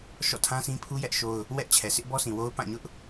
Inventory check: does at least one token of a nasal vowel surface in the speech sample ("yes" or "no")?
yes